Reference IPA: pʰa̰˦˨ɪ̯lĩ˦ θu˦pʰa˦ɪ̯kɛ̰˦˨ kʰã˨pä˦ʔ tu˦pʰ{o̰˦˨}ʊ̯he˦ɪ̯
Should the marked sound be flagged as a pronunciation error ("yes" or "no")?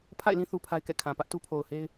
yes